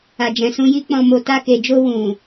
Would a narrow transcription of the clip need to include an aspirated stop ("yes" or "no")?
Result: no